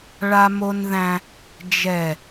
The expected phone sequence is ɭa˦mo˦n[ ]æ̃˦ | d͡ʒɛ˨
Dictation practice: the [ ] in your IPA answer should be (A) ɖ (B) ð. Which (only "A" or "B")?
B